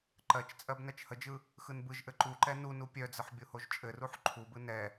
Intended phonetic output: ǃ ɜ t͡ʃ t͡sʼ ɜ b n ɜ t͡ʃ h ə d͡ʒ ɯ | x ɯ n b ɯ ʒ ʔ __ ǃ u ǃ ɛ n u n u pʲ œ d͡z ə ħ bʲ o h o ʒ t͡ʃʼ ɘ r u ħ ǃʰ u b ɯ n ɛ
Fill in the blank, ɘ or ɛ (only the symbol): ɘ